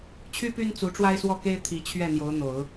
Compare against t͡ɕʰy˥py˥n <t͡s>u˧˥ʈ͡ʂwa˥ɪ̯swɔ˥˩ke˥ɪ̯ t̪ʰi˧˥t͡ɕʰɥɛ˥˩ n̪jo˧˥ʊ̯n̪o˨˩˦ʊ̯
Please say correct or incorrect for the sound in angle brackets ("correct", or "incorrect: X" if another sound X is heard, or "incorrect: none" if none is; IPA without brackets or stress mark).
correct